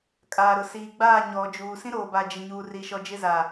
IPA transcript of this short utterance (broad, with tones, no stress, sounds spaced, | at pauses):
kʼ aː˨ ɾ ʊ˨ s iː˨ ɡ͡b aː˦˨ ɲ ɔ˨ d͡ʒ uː˨ s ĩ˦ ɾ oː˨ b a˨ d͡ʒ ɪ˨ ɲ uː˨ r i˨ ʃ ɔ˨ d͡ʒ ɪ˦ z aː˨